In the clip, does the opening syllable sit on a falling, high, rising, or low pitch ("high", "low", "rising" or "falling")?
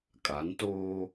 rising